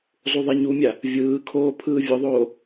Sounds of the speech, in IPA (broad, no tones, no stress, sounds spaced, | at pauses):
zˤ u ðˤ e ɲ u mʲ a | vʲ ɯː kʰ oː pʰ ɯː vʲ o ðˤ oː